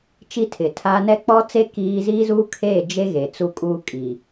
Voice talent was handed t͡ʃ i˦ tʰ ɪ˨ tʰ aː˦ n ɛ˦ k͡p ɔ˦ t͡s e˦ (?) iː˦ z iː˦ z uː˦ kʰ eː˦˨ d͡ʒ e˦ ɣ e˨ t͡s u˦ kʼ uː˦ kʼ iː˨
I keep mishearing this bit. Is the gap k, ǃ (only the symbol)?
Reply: k